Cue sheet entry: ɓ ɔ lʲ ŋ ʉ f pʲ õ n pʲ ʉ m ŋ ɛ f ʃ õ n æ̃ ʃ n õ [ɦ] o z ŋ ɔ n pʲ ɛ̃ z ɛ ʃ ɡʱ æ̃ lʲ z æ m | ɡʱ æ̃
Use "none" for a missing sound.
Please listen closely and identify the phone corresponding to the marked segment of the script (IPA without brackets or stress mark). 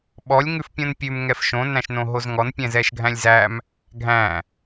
ɦ